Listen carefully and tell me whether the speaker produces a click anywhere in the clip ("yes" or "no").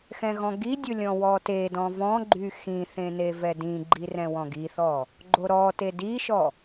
yes